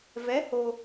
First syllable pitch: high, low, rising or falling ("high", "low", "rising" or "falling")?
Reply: rising